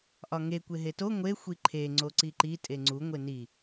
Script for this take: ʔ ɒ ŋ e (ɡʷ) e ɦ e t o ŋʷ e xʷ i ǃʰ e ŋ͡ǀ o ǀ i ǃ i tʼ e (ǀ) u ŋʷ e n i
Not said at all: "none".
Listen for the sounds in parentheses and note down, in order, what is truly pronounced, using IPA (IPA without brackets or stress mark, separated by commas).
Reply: kʷ, ŋ͡ǀ